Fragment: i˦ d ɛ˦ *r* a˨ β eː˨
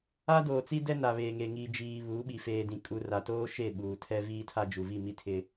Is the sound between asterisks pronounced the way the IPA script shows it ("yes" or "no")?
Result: no